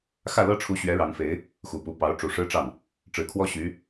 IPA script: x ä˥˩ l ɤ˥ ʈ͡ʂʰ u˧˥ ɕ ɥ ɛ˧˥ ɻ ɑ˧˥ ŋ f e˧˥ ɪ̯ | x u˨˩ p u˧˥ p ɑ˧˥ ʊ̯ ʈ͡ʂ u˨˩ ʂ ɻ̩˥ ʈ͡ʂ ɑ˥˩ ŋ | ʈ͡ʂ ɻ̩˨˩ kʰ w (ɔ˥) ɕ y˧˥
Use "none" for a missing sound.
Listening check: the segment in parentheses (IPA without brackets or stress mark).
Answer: ɔ˥